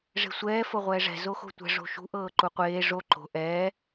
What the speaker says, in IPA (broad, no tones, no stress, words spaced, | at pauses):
ʐe̤sʷɛː fɤʁʷɛːʐɛ̤ zoxo̤tʷɛ̤ ʐo̤ʃṳ ʔɤːǃuqʷeː ʐo ǃo̤ ʔɛː